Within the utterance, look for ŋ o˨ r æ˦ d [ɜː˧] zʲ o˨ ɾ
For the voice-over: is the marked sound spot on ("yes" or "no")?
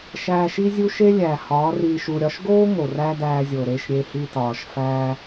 no